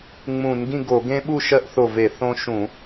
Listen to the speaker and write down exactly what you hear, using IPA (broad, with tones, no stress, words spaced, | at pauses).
ŋ͡mũ˧˩˧nɡĩ˥˨ɡo˧˩˧ ɡẽ˦ɓu˥˨ ʃɜ˦ʔθo˧˩ve˧˩˧ θõ˦ʃũ˧˩˧